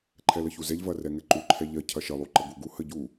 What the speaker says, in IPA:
ǃʰ ɛ l ə ç u z ɛ ʎ v ɐ r ɛ ŋ ɛ ǃ u ǃʰ ɛ ʎ ɐ cʰ ɐ ʃ ə lˠ u ǃ ə ɡ u ɡ u h ə ɟ u

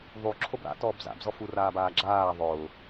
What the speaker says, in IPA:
ðˤ u ǁʰ o b ɾ a̰ t ɔː b z a̰ b z ɔ f u r aː b aː ɡ͡ǁ aː ðˤ ʊː

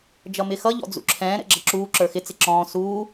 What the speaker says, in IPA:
d͡ʒ ʌ m ɪ x ʌ ʎ ɔ̰ d͡z ṵ ǁʰ ɛ̃ː ɾ ɛ̰ ɡ͡ǁ ʌ ǁ uː ǁ ə˞ x ɪ t͡s ɪ ǁ ɔ̃ː s uː

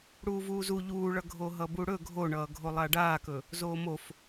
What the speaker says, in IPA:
ɽ uː v uː z u ʎ uː ɭ ʌ ɡʱ o ɦ ʌ b u ɽ ɵ ɡʱ o ɳ ʌː ɡʱ o lˠ a ɖ aː k ɵ | z oː m o f

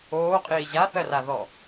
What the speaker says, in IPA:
oː qʼ iː ʑ a θ ɜ r a ð ɔ

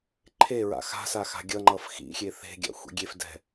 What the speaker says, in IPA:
ǃʰ e ɹ a̰ x a̤ s a x a̤ ɡʲ ʌ ŋ͡ǃ ʌ f x ḭ xʲ e θ e̤ ɡʲ a̰ xʷ ḭ ɡʲ e f d ɛ̤

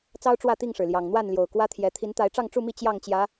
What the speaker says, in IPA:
t͡s ɑ˦ ʊ̯ ʈ͡ʂ w ä˥˨ t̪ i˥˨ ŋ ʂ ɻ̩˩ l j ɑ˨˩ ŋ n̪ w a˥˨ n l j o˨˩ ʊ̯ k w ä˦ t̪ʰ j ɛ˨˦ t̪ʰ i˨˦ n t̪ a˨˦ ɪ̯ ʈ͡ʂ ɑ˥˨ ŋ ʈ͡ʂ u˥˨ m i˥˨ t͡ɕ j ɑ˥˨ ŋ t͡ɕ j ä˨˦

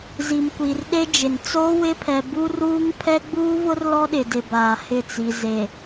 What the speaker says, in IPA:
z i˨ m kʷ i˨ r ɗ e˦ d͡ʒ ɪ˨ n t͡s oː˦ w ɪ˦ pʰ ɛ˨ b u˦ r uː˦ ŋ pʰ ɛ˦ ɡ͡b uː˦ v ʊ˦ r l ɔ˦ ɗ ɪ˨ d ɪ˨ b aː˨ h ɪ˦˨ t͡s i˨ z e˨

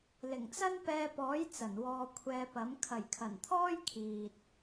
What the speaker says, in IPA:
l ɪ˨˩ ŋ t͡s ɐ˥ n p ɛː˧ p ɔː˨˥ j t͡s ɐ˨˩ n w ɔː˧ kʷʰ ɛː˧ p ɐ˨˥ m kʰ ɐ˨˩ j kʰ ɐ˨˩ n t̪ʰ ɔː˥ j kʰ iː˨ t̚

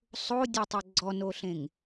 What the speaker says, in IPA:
sˤ o dʲ ɤ tˤ ɤ ɡ͡ǀ ɔ n o ɬ ẽ ŋ

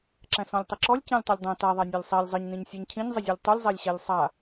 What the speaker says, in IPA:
ǁ æ̃ s ɔ̃ lʲ tˤ ɛ ǁ ɔ lʲ c ɛ̃ lʲ tˤ ɘ lʲ dˤ æ̃ t a ðˤ æ nʲ a lʲ sˤ ɛ lʲ zˤ ɘ ɲ n ĩ ɲ sʲ æ ɲ cʰ ĩ ɲ zˤ ɘ zʲ u lʲ tˤ u lʲ zˤ æ lʲ ɕ æ lʲ sˤ a

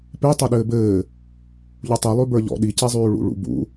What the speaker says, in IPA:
p e tˤ ɘ ɗ ɘː b ɘː | ʎ u tˤ i lˠ ʉ b ə˞ ʎ ɔ̰ ɗ i c e zˤ ʉː ɭ ṵ ɭ ṵ b ṵ

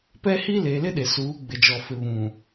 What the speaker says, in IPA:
p ɛ˦ h i˦ l e˨ l ɪ˦ ɗ e˨ s uː˨˦ ɡ͡b ɪ˨ d͡ʒ ɔ˨ f ɪ˨ β ũ˨

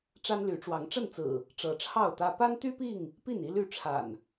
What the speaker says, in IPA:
ʈ͡ʂ a˦ n l y˨˦ ʈ͡ʂ w ɑ˨˦ ŋ ʈ͡ʂ ə˥˨ n t͡s ɹ̩˨˩ | ʈ͡ʂ ɤ˨˦ ʈ͡ʂʰ ɑ˥˨ ʊ̯ t̪ ä˦ p a˦ n t̪ y˦ p i˥˨ ŋ | p i˥˨ n i˦ l y˥˨ ʈ͡ʂʰ a̰˨˩ n

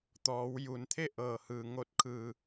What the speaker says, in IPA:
t̪ ɔː˩˧ w j u˩ n t̪ʰ e˥˨ ʔ ɤː˧˩ h ɯː˧˩ ŋ o˧ t̚ kʰ ɯː˩

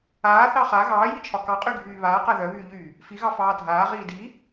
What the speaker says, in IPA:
aː θ ɑ χ a ɣ ɑː j i t͡ʃʰ ɒ k ɑ qʼ y ɡʱ yː β aː q a ð œ β yː ʎ yː | f i ɣ ɑ f ɑː dʱ aː ʁ iː d i

